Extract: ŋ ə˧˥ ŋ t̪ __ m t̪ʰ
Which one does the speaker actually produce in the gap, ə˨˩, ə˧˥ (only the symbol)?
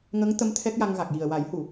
ə˧˥